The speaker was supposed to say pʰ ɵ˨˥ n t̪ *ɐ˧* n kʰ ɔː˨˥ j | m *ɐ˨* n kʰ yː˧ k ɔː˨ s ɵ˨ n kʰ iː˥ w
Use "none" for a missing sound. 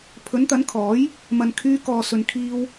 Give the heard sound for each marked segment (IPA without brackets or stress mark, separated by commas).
ɐ˨˥, ɐ˨